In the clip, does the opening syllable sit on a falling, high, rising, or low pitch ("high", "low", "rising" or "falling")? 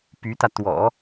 rising